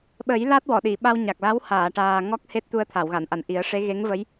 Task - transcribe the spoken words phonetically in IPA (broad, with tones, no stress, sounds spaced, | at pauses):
ɓ ə˨˩˦ j l a˦˥ t̚ w ɔ˨˩˨ ɗ i˨˩˨ ɓ a˧ w ɲ a˨˩ k̚ l a˧˥ w h aː˨˩˨ ʈ aː˨˩ ŋ ɔ˦˥ k̚ h e˦˥ t̚ t̪ u˧ ə̯ t̪ʰ a˨˩˨ w ɣ a˨˩˨ n ʔ a˨˩˨ n ʔ i˨˩˦ ə̯ ʂ e˧˥ ɣ e˧˥ ŋ v ə˧˥ j